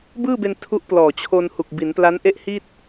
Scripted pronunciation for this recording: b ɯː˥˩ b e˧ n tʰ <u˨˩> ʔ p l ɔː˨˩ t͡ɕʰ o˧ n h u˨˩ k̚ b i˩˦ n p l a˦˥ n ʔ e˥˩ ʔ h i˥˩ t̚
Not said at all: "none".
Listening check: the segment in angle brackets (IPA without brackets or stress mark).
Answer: u˦˥